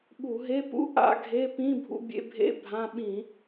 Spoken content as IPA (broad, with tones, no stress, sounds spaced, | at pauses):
ɓ u˧˩˧ ɦ e˧˥˧ p ṵ˧˥˧ ʔ a̰˧˥˧ ɡʱ e˧˥˧ p ĩ˧˥˧ bʱ ṵ˧ bʲ ḛ˧ bʱ ḛ˧˥˧ bʱ ã˧˥˧ ɓ ĩ˧˩˧